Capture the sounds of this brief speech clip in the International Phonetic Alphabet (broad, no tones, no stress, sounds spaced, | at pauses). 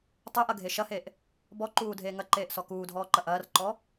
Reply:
tˤ y ʔ ɐ ɡʱ e ʃ ɐ h e ʔ | b ɔ ǃ uː dʱ eː ŋ ɐ ǃ eː ʔ s ɔ k uː dʱ ɔː ǃ ɐ ʔ ɐː r ǃ ɔ